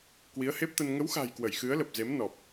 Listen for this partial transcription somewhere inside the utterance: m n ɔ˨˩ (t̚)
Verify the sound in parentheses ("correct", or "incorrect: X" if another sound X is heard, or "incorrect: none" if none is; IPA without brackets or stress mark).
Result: incorrect: p̚